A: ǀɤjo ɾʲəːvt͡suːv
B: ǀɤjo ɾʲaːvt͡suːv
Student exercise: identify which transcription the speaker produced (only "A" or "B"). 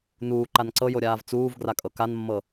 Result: B